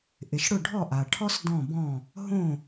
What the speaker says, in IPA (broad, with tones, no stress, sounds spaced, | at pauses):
ʔ ɪ˩ ʃ ɽ ʊ˥˩ ɖʱ ɔ˥˩ ʔ a˩ ʈʰ ɔ˥ s d ɔ̃˥˩ b ɔ̃˥˩ | ɦ õ˥˩